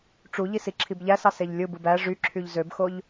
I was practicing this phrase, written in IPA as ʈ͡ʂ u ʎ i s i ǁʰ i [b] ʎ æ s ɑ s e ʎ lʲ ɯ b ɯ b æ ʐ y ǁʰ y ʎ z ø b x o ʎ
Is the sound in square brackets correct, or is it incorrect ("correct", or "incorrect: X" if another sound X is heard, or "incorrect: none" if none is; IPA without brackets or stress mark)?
correct